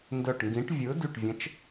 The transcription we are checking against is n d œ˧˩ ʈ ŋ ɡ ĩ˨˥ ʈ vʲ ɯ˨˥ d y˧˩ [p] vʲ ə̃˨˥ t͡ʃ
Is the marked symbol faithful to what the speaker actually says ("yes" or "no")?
no